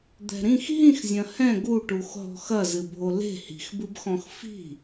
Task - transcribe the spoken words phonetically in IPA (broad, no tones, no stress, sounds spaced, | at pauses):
d̪ ɛ̤ ɾ ĩ x ɦ ĩ x zʲ ɐ̃ h ɛ̃ ɡ u ʈ u x ɦ ɔ̤ x ɐ z ɨ bʱ o l e̤ h i̤ x b ɨ b x ɔ̃ x f i̤